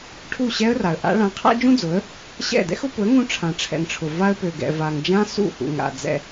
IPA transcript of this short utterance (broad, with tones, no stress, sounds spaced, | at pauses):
ʈʰ u˦˨ ɕ ɛ˦ ə̯ r a˨ ə̯ ʔ a̰˦ ɭ ã˨˦ qʰ a̰˦ d͡ʒ ũ˦ d͡z ʊ˨˦ ə̯ | ɕ ɛ̰˦˨ d ɛ̰˦ x ʊ˦ p ʊ˨˦ ə̯ ŋ ũ˦ ʈ͡ʂʰ ã˨ ʈ͡ʂʰ ɛ̰˨ ŋ ʈ͡ʂʰ ʊ˨ v a˦ ə̯ p ø˨ ɡ ɛ̰˨ v a˨ ŋ d͡ʒ ã˦ s ṵ˦˨ h ṵ˨ ŋ a̰˨ d͡z ɛ̰˦